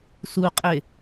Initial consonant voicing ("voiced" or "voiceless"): voiceless